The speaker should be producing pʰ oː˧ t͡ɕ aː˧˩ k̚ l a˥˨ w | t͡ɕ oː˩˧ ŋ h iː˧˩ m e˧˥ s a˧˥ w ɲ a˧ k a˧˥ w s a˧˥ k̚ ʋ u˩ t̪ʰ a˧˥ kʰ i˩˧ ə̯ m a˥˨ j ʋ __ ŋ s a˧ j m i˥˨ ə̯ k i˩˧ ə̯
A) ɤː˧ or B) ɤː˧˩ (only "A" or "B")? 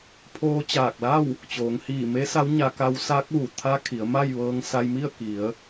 A